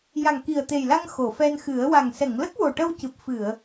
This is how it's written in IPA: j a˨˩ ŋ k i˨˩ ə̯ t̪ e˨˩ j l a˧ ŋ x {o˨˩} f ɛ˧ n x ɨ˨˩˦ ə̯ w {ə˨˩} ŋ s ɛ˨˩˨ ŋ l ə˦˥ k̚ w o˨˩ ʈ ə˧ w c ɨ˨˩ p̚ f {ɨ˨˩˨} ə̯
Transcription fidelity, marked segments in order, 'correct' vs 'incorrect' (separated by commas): incorrect, incorrect, correct